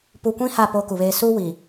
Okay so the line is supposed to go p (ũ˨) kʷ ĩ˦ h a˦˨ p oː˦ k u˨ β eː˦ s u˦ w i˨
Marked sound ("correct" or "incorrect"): incorrect